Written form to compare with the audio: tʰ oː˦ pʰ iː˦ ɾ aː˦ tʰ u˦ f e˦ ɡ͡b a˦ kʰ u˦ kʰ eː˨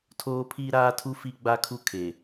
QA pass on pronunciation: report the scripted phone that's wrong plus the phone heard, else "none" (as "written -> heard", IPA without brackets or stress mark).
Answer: e˦ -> i˦